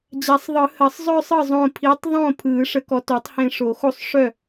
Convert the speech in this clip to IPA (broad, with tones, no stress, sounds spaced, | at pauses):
d͡ʑ a˨˩˦ sˤ ðˤ ɯ˨˩˦ h ɜ˨˩˦ sˤ zˤ œ˥˧ sˤ ɯ˥˩ zˤ õ˧˩ pʰ i˨˥ tˤ ðˤ õ˥˩ pʰ ɯ˨˩˦ ʂ ə˨˥ k ɔ˨˥ t o˨˥ tˤ h ẽ˧˩ ʂ o˨˩˦ x o˥˩ sˤ ʂ œ˥˩